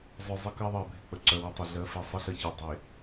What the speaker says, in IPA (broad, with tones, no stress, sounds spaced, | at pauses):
zˤ œ˨ zˤ ə˦ k ɜ˦ ðˤ ɜ˨ bʱ ɪ˨ k͡p ə˨ ǀ œ˨ w ɪ˨ tˤ ɪ˨ ɮ ɜ˨˦ f e˨ sˤ ə˦ ɬ ə˦˨ ç e˨ dˤ e˨